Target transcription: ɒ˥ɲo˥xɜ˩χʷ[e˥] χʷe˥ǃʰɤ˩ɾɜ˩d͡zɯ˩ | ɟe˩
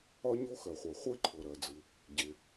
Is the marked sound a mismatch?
yes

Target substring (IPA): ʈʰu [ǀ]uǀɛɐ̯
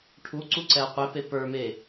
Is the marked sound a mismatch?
no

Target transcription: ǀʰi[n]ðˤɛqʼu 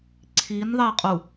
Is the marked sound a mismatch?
no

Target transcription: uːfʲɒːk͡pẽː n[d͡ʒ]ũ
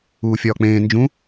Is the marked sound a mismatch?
no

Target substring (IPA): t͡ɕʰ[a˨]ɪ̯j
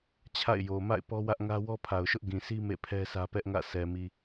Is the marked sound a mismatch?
yes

